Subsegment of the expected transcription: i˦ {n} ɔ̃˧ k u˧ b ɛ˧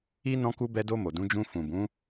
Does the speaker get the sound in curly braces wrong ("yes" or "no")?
no